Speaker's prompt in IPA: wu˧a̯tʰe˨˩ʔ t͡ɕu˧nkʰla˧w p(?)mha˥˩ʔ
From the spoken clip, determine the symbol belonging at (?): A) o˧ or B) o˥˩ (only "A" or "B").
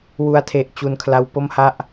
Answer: B